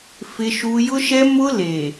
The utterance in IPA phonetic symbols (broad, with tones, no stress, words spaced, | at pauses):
fɪ˦ʃu˦ jʊ˦ʃɛ˦ mʊ˦le˨